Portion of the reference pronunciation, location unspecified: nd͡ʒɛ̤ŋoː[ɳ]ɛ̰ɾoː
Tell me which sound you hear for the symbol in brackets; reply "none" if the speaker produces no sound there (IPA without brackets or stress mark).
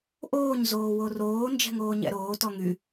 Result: ɲ